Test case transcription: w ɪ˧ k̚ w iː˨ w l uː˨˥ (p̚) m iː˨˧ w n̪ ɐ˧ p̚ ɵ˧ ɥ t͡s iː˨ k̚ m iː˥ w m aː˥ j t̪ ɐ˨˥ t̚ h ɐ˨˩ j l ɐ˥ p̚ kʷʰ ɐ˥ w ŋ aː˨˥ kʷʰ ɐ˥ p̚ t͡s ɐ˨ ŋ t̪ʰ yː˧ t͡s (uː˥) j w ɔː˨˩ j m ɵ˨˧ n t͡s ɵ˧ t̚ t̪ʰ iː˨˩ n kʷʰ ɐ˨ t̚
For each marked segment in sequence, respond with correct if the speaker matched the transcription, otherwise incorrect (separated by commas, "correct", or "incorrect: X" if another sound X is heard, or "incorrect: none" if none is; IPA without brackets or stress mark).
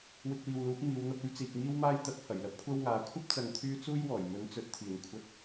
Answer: correct, correct